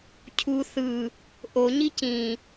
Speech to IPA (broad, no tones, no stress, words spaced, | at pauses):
cʰu θɯ | ʔoɲi cĩ